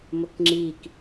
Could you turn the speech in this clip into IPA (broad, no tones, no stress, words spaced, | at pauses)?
mokŋ͡ǁik